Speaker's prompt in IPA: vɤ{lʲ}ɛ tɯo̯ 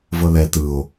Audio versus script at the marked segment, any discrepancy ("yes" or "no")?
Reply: yes